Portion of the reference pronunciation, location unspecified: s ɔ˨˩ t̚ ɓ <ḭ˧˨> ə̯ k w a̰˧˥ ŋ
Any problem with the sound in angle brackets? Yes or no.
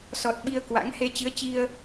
yes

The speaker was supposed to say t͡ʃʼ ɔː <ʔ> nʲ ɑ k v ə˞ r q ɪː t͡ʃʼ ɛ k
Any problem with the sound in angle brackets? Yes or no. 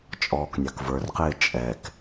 yes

